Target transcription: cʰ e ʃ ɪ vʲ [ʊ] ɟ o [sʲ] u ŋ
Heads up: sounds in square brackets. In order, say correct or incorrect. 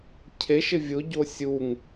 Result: correct, correct

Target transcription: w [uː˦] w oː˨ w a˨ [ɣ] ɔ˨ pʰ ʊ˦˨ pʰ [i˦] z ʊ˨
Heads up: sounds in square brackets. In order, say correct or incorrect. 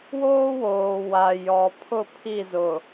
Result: incorrect: oː˦, incorrect: j, incorrect: i˦˨

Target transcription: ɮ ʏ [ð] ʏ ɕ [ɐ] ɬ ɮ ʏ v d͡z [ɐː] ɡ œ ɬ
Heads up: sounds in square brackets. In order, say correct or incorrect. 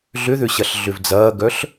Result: correct, correct, correct

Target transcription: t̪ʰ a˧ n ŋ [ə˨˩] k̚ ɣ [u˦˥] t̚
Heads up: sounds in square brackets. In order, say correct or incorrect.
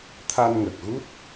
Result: correct, correct

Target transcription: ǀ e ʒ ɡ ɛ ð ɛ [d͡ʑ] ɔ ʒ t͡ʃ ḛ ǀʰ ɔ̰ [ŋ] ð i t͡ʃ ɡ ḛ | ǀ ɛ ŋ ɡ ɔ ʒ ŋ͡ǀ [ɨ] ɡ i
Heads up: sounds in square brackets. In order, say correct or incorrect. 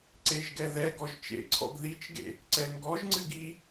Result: incorrect: ɡ, incorrect: ɡ, correct

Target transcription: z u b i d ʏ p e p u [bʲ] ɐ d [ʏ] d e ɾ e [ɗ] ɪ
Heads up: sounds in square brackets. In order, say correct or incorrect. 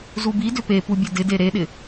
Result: correct, incorrect: ɪ, correct

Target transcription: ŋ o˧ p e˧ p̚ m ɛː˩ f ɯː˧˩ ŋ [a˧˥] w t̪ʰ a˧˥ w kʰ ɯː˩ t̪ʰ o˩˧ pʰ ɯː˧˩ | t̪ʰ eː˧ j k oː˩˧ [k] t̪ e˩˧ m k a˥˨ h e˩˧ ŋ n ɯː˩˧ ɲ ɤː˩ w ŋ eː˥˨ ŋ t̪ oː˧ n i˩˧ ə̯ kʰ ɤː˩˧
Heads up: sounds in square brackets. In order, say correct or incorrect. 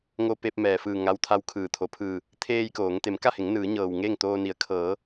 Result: correct, incorrect: ŋ

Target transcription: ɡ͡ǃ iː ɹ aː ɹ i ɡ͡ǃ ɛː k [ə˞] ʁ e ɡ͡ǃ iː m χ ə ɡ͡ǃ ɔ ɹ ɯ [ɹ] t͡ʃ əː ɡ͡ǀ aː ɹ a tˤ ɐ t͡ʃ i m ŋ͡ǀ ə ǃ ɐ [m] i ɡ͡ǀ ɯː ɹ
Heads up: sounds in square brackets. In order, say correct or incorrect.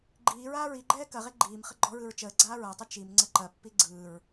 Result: incorrect: ɐ, correct, incorrect: pː

